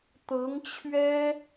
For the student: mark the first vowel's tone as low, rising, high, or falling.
rising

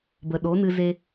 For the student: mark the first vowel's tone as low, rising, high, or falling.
low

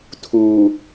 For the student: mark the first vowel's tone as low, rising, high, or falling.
low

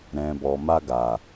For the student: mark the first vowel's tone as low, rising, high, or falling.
low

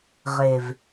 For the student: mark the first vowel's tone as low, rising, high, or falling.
low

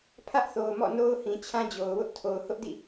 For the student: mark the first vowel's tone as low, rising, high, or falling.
high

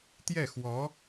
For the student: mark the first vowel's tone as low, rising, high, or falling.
falling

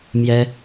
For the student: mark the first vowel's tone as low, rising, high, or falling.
high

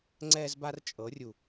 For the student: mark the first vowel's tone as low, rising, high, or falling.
high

